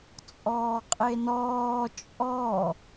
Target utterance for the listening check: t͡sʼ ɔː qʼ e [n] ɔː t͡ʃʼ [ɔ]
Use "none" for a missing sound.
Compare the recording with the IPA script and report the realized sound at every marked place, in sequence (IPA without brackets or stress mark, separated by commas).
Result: n, ɔ